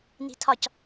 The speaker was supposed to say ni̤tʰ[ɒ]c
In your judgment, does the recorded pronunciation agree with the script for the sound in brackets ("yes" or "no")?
yes